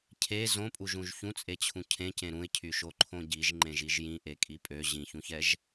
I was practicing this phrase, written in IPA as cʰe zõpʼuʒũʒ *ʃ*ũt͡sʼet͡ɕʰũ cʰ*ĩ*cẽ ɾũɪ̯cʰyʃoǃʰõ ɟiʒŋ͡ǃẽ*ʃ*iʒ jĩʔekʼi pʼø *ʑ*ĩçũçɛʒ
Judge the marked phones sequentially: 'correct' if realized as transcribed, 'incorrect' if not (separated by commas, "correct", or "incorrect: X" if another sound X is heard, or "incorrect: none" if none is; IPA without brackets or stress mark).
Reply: incorrect: ç, incorrect: ẽ, incorrect: ʒ, correct